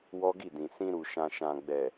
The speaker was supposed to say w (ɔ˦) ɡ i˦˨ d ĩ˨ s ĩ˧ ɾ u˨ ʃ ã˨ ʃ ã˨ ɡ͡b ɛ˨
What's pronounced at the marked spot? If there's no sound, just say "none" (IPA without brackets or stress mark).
ɔ˦